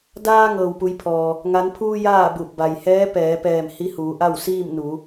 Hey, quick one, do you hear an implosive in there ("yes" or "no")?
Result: no